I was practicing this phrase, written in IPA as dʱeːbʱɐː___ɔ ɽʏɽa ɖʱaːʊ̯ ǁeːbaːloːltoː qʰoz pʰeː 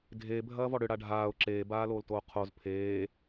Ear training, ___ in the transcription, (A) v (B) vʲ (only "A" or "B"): A